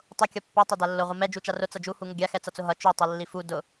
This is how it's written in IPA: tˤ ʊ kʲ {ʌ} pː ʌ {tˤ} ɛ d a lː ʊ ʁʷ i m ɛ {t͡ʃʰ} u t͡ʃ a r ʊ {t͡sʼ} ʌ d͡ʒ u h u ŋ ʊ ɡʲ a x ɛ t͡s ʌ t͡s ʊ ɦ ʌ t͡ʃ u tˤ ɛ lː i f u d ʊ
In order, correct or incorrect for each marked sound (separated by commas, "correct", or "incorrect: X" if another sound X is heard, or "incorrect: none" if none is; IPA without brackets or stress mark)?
correct, correct, incorrect: d͡ʒ, incorrect: t͡s